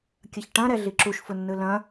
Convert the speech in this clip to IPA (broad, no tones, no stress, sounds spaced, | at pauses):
kʲ ɐ ç ʈ ɐ̃ ɾ ɛ ɮ i ǁ u ʃ f ʊ nː ɯ l ɐ̃